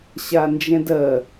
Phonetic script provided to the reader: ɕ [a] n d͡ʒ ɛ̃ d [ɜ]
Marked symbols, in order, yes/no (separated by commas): yes, yes